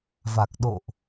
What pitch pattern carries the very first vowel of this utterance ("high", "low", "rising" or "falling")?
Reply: low